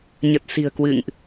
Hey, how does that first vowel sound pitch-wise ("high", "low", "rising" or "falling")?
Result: low